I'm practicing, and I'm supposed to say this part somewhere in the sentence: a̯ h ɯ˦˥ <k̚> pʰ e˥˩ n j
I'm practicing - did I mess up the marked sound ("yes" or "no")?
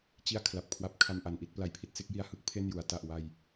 no